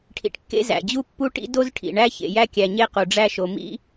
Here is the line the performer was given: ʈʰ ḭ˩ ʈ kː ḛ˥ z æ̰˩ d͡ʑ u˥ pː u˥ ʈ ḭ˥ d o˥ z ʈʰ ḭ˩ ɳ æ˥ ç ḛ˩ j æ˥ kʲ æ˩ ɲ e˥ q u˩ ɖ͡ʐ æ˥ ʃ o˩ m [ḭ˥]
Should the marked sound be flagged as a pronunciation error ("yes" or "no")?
no